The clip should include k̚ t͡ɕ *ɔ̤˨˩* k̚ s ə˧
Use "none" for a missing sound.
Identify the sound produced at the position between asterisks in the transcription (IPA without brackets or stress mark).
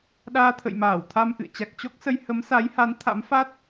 ɔ˦˥